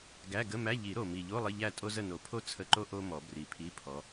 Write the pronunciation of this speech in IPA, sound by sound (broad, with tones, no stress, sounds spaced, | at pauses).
ɡ æ˧˥˧ ɡ ə˧˥˧ m æ˧˥˧ ʎ i˨˩˦ ɾ o˨˩ m i˨˩ ʎ o˧˥˧ lˠ ə˧˥˧ ʎ æ˥˨ tʼ o˥ z ə˥˨ n o˨˩˦ pʰ o˥ t͡sʰ ə˧˥˧ ǃ o˥ ʔ o˥ m ɔ˨˩˦ b r i˨˩ pʰ i˧˥˧ pʰ ɔ˨˦